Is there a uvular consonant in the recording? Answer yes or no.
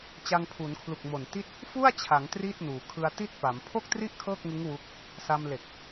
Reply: no